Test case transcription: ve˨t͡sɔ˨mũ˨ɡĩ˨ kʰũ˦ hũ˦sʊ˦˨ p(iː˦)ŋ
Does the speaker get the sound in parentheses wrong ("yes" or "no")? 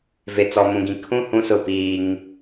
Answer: no